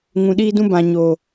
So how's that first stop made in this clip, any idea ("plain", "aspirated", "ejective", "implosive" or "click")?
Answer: implosive